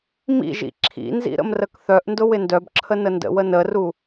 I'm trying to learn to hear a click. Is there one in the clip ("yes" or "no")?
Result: yes